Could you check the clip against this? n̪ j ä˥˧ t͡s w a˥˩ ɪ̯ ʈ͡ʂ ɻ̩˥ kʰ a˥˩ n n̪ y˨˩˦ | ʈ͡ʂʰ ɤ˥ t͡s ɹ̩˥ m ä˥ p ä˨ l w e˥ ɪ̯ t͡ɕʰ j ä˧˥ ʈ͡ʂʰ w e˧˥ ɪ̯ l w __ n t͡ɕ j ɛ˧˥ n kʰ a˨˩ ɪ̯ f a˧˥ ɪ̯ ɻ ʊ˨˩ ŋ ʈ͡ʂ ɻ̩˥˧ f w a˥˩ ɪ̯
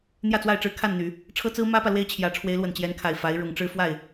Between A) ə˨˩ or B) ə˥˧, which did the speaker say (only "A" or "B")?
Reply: A